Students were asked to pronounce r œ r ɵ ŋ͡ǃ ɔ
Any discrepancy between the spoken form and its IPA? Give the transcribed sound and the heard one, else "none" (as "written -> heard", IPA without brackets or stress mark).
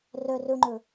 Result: ɔ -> ɵ